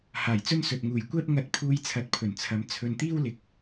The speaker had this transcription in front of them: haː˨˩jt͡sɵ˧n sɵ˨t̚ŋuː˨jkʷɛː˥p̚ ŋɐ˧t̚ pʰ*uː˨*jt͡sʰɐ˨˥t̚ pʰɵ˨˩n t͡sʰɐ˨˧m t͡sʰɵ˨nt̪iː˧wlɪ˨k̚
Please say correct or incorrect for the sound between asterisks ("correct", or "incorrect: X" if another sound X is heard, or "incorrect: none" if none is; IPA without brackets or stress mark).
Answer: incorrect: uː˧